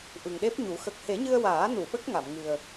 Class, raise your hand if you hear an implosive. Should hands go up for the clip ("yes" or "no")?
yes